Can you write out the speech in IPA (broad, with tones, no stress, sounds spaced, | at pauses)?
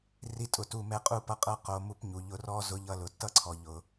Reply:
r i˧ tʼ ʊ˨ t u˦˨ m ɛ˦ qʼ u˧ p ʌ˧ qʼ ɤ˧ q o˧ m u˦ p ɲ u˨ ʎ ʊ˧ r ɔ˦ z ʊ˧ ʎ ʌ˧ l ʊ˨ tː ʌ˦ ǀʰ ɔ˨ ʎ ʊ˨